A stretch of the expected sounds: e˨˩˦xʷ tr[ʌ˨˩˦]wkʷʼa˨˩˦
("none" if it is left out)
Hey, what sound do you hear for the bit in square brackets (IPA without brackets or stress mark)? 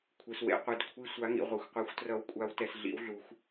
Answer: ʌ˨˩˦